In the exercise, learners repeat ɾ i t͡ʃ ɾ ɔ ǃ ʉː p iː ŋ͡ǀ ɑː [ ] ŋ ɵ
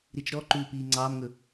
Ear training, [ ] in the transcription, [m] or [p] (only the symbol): m